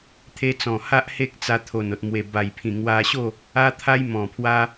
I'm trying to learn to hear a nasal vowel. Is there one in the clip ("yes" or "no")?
yes